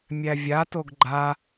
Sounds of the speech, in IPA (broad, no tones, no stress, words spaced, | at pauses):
mʲævʲatoɡ ɡ͡ǃa